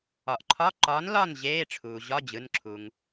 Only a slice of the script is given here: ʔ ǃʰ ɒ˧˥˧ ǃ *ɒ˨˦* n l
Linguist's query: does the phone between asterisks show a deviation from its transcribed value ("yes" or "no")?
no